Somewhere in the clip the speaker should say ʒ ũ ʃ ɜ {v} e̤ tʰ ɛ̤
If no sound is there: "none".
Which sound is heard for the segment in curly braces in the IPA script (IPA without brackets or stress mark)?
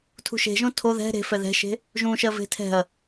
v